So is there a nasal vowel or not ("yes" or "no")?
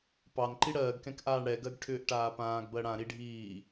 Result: yes